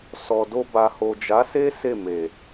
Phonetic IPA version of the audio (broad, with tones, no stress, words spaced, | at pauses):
sɔ˨do˧ ba˨ho˨d͡ʒa˨˦se˦ se˦˨me˨